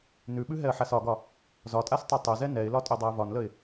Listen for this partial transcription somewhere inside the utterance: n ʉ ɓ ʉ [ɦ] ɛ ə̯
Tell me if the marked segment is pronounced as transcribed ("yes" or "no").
yes